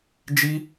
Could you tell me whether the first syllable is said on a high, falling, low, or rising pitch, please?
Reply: high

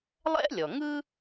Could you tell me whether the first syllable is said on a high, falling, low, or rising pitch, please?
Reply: high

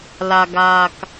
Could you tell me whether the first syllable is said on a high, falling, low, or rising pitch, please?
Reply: low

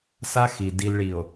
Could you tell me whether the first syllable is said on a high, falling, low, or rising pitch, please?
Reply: high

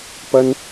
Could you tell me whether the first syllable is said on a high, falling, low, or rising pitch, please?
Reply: high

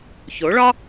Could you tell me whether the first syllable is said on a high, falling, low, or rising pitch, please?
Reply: rising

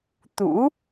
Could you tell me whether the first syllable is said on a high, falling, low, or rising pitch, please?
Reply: rising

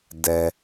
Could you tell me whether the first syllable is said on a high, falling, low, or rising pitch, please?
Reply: low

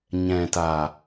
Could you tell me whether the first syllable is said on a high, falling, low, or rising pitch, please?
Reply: low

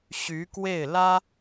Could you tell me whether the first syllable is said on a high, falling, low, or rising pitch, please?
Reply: rising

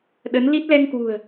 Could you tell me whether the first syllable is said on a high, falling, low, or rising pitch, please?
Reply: rising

